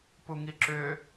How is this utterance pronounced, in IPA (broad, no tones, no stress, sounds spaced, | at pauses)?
p u ŋ i ǁ ʏː